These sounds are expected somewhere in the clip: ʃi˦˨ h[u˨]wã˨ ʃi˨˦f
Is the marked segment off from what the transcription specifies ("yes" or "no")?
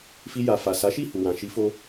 no